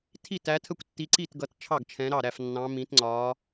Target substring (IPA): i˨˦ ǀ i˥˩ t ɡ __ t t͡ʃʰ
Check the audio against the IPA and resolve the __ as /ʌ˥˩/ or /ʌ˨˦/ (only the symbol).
ʌ˨˦